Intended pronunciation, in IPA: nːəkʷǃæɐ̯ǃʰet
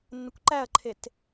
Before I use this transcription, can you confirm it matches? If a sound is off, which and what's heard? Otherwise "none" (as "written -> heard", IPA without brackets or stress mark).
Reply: none